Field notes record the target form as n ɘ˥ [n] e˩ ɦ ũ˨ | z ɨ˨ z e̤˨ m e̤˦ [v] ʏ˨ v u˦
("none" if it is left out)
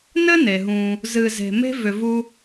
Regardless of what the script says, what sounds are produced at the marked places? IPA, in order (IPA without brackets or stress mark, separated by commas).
n, v